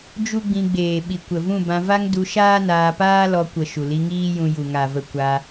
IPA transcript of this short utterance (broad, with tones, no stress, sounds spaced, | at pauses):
d͡ʒ u˦ ɡ͡b ĩ˧ ɡ͡b eː˨ ɓ i˨ kʷ ə˨ v ũ˦˨ b ã˧ v a˦ ŋ d u˧ ʃ aː˦ n aː˧ p aː˦ l ɔ˧ kʷ ə˨ ʃ u˨ l i˧ ŋ iː˦ j ũ˧ j u˨ ŋ a˨ v ə˧ kʷ a˧